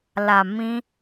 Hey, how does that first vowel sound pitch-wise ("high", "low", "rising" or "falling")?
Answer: low